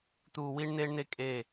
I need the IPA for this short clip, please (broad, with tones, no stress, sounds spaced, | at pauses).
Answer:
t̪ uː˨ w i˧ ɳ n̪ eː˦ ɳ n̪ e˦ kʼ e˦˨